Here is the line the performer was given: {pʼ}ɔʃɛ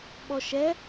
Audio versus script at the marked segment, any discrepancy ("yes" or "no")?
yes